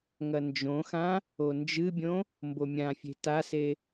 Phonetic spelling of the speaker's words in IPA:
ŋ ɐ n d͡ʒ õ x ã | o n d͡ʒ ɨ bʲ õ | m b o mʲ ã fʲ e̤ t a s e

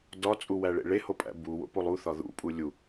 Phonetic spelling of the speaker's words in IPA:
d ɒ t͡sʼ u w æ ɭ ḛ ɭ e h o pʼ æ̰ b u w o̰ p o lˠ u θ ɒ ð ṵ pʼ u lʲ u

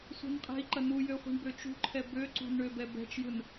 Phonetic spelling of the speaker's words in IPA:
sʷ ɛ̤ n qʼ ɛ̤ i̯ ǃ ɐ n u j ø χʷ i̤ ɳ b ø t͡ʃ ṳ ǃʰ ɛ b ø ǀ ṳ n ɳ ø b ɛ b ɛ̤ t͡ʃ j ɯ n

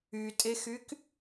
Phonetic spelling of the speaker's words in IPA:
y tʼ e x y k

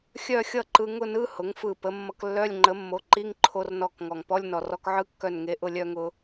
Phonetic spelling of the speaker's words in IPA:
xʲ œ˥˧ xʲ ʌ˥˧ ǃ ɯ˧ ŋ ʊ˥˧ n ɯ˧˥˧ h ʊ˩˥ ŋ f ɯ˧˩ p ə˩˥ mː ʌ˧ k lː œ˧˥˧ lʲ ŋ͡ǃ ə˩˥ mː o˩˥ ǃ i˧˥˧ ŋ ǃʰ o˧ r n ɔ˧˩ k ŋ ɔ˩ ŋ p ɔ˧˥˧ lʲ n ɔ˩ r ɔ˧ k ʕ ɯ˧˥˧ kː œ˧˩ n ŋ e˩˥ ʔ ʊ˧˩ lʲ œ˥˧ ŋ ʊ˧

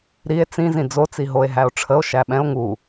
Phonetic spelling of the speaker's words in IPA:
ɾ i e̯ t͡s ĩ z ĩ d͡z o t͡s i ɦ o e̯ ɦ æ o̯ ʈ͡ʂʰ ə o̯ ʃ æ ɓ ɛ̃ o̯ ŋ u

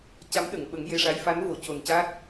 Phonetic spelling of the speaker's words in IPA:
c a˧˥ m ɗ ə˨˩˨ ŋ ɓ ə˨˩˦ ŋ j e˧ ʂ a˧˥ j f a˧˥ n v o˨˩˨ c o˨˩ n c a˦˥ t̚

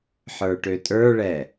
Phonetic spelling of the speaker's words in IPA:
ħ ə˞ ʈ ø tʼ ə˞ ɭ ɛ

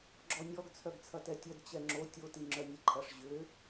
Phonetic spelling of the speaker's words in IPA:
ɡ͡ǁ ɔ nʲ ɔ ɡ t͡sʰ œ ɡ t͡sʰ ɐ t ɛ tʲ œ d t͡ɕ ɛ ŋ͡ǁ o tʲ o t i ŋ͡ǁ œ nʲ e ǃʰ ɐ ʂ ʑ ʏ

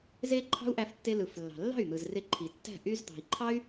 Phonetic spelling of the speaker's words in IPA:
z e˦ ǃʰ ɑ̤˦ u̯ ʔ æ˧ f tː e˧ l ɯ˨ f lː ɑ̤˨ lː ɑ̤˦˨ y̯ n̪ ɯ˨ z r e˧ ǃʰ i˨ tː æ̤˦˨ ʔ y˧ z d̪ ɑ̤˨ i̯ ǃʰ ɑ˦ y̯

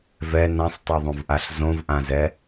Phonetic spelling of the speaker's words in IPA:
v ɛ n ã sˤ tˤ e ðˤ õ v ʔ a ɬ z õ v ʔ ã z ɛ

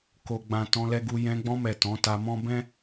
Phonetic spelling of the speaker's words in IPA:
k o˨ ɡ͡b ã˨ t ɔ̃˧ l ɛ˧ ɡ u˧ j ɛ̃˧ ɡ͡b ɔ̃˧ m ɛ˨ t ɔ̃˨˦ t a˧ m ɔ̃˦ b ɛ̃˦

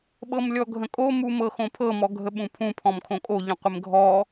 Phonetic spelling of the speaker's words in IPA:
ɓ ɤ m lʲ ɔ ɡʱ ə̃ kʼ o m u m ɤ x õ pʰ ɤ m ɔ ɡʱ ə ɓ ũ pʰ ũ pʰ ɔ̃ m kʰ õ kʼ o ʎ ə̃ qʷ ɪ m ɡʱ ɔ

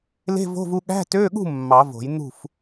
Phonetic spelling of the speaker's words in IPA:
l e̤˧˥˧ v o̤˧˥˧ v u˧ ɠ æ̤˧˥˧ t ø˧˥˧ ɠ ṳ˥˨ mː ɑ˨˩˦ v o̤˨˩˦ j n̪ ṳ˥˨ f

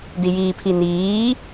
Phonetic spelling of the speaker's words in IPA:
d i j iː pʰ i n iː

